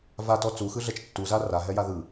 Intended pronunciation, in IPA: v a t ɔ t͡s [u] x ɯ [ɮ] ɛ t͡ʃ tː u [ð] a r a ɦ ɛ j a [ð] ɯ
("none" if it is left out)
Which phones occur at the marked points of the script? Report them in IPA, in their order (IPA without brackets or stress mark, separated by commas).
u, ɮ, z, ð